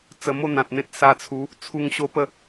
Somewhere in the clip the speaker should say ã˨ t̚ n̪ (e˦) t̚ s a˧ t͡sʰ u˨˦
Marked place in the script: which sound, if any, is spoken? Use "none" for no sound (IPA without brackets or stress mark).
ẽ˦